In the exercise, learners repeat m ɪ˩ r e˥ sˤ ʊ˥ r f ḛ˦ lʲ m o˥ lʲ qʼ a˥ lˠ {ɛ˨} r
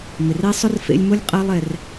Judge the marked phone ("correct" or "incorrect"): correct